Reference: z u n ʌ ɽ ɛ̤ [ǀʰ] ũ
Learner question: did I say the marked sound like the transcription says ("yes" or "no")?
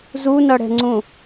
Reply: no